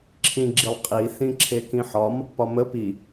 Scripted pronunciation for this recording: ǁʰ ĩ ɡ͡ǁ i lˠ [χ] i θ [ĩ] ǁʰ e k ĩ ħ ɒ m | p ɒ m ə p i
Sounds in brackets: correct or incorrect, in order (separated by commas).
incorrect, correct